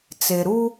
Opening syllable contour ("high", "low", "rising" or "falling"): low